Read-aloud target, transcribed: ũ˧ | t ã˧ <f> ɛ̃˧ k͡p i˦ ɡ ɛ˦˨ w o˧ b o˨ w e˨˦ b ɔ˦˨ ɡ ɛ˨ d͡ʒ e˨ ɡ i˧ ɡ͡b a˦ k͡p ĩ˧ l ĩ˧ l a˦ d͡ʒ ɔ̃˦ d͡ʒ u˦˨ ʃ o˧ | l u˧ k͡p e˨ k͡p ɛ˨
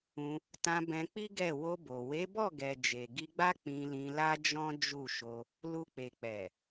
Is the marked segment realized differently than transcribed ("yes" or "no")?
yes